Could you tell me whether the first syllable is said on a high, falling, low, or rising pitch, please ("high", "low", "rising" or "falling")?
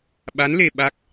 rising